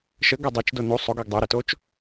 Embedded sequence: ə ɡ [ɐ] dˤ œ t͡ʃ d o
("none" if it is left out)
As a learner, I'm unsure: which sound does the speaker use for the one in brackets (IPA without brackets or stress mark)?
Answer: ɐ